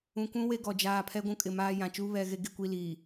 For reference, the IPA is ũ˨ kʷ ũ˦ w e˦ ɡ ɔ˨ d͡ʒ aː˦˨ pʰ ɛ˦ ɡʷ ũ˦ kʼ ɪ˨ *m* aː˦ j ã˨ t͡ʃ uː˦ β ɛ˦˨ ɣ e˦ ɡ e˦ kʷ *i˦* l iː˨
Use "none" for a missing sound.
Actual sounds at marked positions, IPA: m, i˦

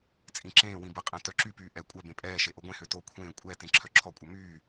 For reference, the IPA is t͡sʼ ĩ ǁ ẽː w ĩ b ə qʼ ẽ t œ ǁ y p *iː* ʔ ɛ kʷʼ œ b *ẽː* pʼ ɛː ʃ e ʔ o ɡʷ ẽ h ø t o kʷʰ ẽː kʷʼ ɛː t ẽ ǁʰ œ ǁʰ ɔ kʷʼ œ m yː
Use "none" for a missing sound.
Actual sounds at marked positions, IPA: yː, ẽ

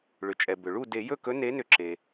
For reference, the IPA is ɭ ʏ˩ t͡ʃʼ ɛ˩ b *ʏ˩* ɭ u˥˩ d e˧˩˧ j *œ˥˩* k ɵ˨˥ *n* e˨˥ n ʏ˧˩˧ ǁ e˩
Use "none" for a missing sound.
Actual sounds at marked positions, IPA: ʏ˩, ɵ˥˩, n

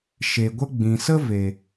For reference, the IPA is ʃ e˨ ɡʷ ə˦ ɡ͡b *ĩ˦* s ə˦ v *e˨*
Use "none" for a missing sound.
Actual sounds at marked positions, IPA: ĩ˨, e˨

